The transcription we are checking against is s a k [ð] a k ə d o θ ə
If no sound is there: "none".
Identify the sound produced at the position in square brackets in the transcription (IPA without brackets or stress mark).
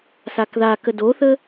ð